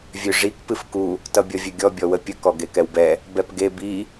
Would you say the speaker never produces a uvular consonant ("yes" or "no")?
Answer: yes